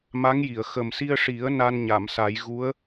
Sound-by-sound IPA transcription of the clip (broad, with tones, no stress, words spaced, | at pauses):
ma˧˥ŋji˨˩˨ə̯ xə˨˩msi˧ə̯ʂi˨˩˦ə̯ na˧nɲa˨˩˨msa˨˩˦j ɣu˧˥ə̯